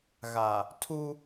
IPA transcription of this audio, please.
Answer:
ɣ a˨ | tʰ u˦

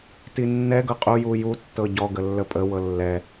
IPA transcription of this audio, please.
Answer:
t i nː ɛ ɡ ɤ qʼ u j u j u tː ɤ ɟ ɔ ɡ ə lː ə pʼ ə w ɤ lː ɛ

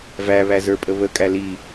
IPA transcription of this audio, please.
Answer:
v æ β æ z ə˞ pʼ ə β ə kʼ æ l i

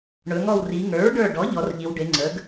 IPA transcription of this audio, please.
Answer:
ɳ ɵ˩˧ ŋ ɔ˧˩ w r i˩˧ ŋ ə˞˩˥ ɹ ɖ ə˞˧˩ ɖ ɔ˩˥ ʎ ɔ˩˥ r ʎ i˩˧ w ɖ e˩˧ ŋ͡ǀ ə˩˥ ɡ

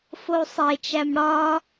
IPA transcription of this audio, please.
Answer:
f o u̯ sˤ e t͡ʃ æ m ɽ ɒ

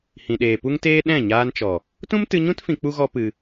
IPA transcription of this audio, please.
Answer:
h ĩ˨ ɗ eː˨ p u˦ ŋ t eː˦ ɗ ɛ̃˦˨ ɲ aː˧ n t͡ʃ ɔ˨ | t ũ˦ m t ɨ˧ ɲ ũ˦ t f ĩ˧ k͡p u˦ ɣ ɔ˦ p ɨ˧

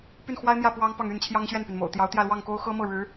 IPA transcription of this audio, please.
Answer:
p y˥˩ n x w a˥ ɪ̯ m j ä˥˩ p w ɑ˥ ŋ p ɑ˥˧ ŋ y˥˩ n t͡ɕʰ j ɑ˥ ŋ ɕ ɥ ɛ˥˩ n p y˩ n m o̰˨˩ ʊ̯ t̪ j ɑ˧˥ ʊ̯ t̪ j ä˥˧ l w ɑ˥˩ ŋ k o˥ ʊ̯ x ɤ˥ m ɤ˥˩ ɻ ɻ̩˧˥

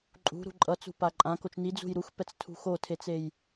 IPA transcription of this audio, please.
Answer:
ǃʼ ṳ ɾ ṳ ǃʼ ʌ t͡s ṳ p a ǃʼ ã k o t͡ʃ n i d͡z ṳ j ɾ u x p ɛ t͡s tʰ ṳ x o tʰ e t͡s e j

